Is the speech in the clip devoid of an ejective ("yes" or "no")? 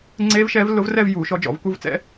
yes